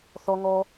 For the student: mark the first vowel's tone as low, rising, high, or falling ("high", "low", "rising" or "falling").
low